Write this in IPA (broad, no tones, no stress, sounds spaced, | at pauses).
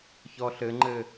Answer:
ç ɔ ɬ ɘ ŋ͡ǃ ɘ